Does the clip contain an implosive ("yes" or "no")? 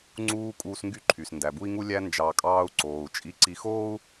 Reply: no